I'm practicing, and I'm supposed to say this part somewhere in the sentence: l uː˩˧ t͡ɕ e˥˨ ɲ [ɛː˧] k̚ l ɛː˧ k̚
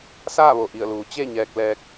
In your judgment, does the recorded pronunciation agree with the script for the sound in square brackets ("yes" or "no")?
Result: yes